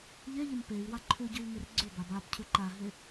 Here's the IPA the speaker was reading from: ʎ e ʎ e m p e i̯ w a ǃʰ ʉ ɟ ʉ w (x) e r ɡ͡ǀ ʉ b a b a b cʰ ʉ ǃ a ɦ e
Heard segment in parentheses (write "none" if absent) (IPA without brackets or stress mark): ŋ